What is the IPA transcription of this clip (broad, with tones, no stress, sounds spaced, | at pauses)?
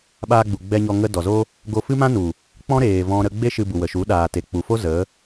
ɓ aː˧ ɡ͡b u˨ ɡ͡b ɛ˧ ɲ ɔ˧ ŋ ə˦ d ɔ˨ z o˦ | ɡ o˧ f ɨ˦ m ã˦ n u˨ | k͡p ɔ̃˦ ɾ eː˨ v ɔ̃˦ ɾ ə˧ ɡ͡b e˦ ʃ ɨ˧ b u˨ w ə˨ ʃ u˨˦ ɗ aː˨ t e˨ k͡p u˨ f o˦ z ə˨˦